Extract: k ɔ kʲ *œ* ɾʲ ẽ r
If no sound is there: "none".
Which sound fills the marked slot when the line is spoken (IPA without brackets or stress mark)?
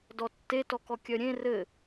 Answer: œ